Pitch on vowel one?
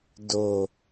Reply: low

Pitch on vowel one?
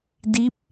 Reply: rising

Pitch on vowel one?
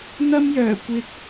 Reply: high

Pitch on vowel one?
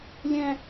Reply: high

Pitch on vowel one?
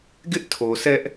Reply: high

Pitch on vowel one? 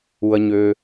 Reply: low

